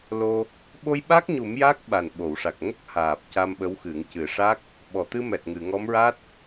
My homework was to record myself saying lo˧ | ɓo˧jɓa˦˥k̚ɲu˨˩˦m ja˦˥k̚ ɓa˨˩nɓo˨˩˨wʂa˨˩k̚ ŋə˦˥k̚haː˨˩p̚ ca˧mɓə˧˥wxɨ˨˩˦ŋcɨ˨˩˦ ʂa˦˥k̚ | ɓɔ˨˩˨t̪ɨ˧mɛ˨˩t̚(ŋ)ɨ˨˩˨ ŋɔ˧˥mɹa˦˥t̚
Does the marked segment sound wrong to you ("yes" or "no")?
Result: no